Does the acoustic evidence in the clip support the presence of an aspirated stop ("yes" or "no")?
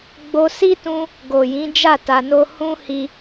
no